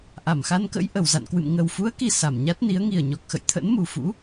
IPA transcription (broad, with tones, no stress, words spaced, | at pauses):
ʔa˧˩mxa˧nkə̰˧˥j ʔə˨˩w za̰˧˨nkwɨ̰˧˨m ŋə˨˩wfu˨˦ə̯ki˨˩ sa˧˩mɲa˦˥t̚ ni˨˦ə̯ŋi˨˩ə̯ɲɔ˨˩k̚xə̰˧˨j t̪ʰə̰˧˥nmu˨˩fṵ˧˥